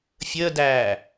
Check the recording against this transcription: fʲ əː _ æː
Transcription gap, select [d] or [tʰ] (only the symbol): d